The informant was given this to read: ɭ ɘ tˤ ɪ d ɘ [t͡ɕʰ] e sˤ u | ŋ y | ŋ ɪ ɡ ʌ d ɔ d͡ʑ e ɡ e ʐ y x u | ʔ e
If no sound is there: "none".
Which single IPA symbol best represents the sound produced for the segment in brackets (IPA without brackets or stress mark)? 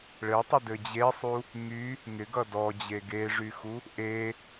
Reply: d͡ʑ